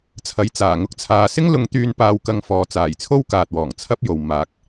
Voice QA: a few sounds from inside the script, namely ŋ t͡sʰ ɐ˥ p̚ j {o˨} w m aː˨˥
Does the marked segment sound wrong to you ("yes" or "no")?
no